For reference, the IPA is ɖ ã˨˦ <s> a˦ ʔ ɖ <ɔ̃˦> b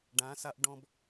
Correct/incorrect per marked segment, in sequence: correct, correct

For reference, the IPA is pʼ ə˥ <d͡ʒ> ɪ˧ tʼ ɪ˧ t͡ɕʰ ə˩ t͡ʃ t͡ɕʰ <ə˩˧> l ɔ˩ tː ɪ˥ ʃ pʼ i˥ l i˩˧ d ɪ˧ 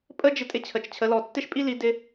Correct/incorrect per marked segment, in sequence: correct, correct

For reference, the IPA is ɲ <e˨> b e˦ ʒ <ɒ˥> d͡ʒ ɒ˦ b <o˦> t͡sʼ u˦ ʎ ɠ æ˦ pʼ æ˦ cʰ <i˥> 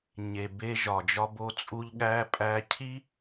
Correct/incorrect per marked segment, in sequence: correct, incorrect: ɒ˨, correct, correct

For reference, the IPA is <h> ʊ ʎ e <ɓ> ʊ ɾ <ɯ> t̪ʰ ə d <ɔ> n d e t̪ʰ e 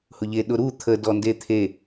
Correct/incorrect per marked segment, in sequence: correct, incorrect: ɗ, incorrect: u, correct

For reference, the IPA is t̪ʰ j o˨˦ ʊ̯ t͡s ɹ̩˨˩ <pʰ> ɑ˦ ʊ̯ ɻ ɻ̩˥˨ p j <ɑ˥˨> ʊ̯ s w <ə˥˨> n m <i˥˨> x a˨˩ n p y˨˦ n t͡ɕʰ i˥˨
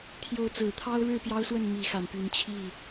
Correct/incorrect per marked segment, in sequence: incorrect: t̪ʰ, incorrect: ɑ˦, correct, incorrect: i˨˦

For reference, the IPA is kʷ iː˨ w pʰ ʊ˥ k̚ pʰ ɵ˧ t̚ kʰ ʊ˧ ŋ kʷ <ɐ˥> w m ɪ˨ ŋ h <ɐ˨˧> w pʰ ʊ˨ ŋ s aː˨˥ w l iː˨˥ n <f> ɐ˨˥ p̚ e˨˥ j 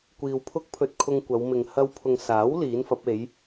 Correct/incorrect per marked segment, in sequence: incorrect: ɐ˨˧, incorrect: ɐ˧, correct

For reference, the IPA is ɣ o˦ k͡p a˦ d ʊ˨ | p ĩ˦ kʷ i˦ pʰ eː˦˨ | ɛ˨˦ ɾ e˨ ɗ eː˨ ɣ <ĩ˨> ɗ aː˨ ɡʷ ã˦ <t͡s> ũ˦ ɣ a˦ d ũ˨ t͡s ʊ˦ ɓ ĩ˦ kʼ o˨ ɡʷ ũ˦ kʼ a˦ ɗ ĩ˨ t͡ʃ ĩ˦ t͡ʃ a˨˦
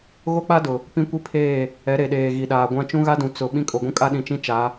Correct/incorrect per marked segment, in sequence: incorrect: i˨, incorrect: t͡ʃ

